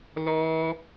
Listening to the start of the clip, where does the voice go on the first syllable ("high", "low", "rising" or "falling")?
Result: high